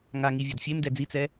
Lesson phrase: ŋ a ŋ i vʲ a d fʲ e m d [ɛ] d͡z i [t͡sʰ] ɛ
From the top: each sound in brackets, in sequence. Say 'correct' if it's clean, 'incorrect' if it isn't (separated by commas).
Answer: correct, incorrect